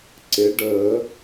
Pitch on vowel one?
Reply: rising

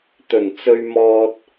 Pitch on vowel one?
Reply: low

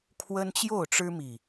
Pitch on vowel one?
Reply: high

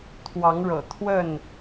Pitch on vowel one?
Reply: rising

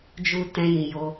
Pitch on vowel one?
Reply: high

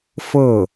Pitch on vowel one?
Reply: falling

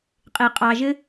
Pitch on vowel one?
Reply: low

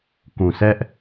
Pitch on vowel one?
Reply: low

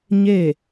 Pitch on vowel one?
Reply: falling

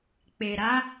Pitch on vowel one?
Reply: low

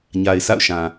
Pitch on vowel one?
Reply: low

